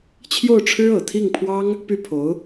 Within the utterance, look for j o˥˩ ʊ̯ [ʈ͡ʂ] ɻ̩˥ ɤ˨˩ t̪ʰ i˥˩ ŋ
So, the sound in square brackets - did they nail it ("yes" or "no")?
no